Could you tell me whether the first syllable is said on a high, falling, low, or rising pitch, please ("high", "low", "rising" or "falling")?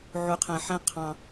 low